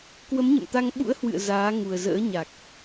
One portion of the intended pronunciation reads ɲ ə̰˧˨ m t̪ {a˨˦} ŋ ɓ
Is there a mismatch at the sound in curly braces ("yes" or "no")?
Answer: yes